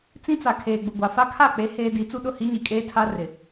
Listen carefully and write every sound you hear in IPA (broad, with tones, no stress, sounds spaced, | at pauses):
t͡s ĩ˦ t͡s a˨ kʰ eː˨ ɡ͡b ʊ˨ ɡʷ a˨ f a˦ kʰ a˦˨ k͡p e˨˦ h eː˦ d i˨˦ t͡s u˦ ɗ ʊ˦˨ h i˦ ɲ i˨ kʼ eː˦ tʰ a˦ r ɪ˨